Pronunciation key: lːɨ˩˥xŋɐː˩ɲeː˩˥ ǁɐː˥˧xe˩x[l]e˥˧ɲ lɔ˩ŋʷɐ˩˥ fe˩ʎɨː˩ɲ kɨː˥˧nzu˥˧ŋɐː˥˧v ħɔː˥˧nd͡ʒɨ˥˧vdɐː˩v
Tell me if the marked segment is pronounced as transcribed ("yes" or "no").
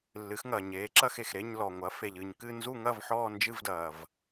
no